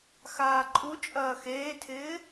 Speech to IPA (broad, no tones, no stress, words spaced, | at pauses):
xaːǃʼu t͡ʃʼɐːxeːtʰɪː